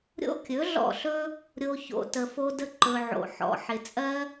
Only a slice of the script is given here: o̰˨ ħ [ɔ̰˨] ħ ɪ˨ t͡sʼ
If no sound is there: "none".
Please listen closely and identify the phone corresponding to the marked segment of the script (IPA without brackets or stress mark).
ɔ̰˨